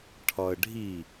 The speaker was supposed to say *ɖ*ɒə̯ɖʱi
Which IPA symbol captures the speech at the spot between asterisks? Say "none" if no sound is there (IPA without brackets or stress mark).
ʈʰ